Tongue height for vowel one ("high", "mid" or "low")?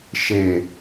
mid